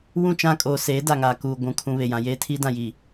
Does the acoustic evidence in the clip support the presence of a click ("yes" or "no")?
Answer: no